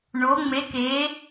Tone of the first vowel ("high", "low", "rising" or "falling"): rising